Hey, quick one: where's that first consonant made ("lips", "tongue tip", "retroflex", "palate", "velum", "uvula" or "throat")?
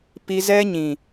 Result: lips